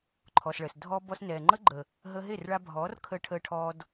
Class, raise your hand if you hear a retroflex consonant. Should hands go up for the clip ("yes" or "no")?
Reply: yes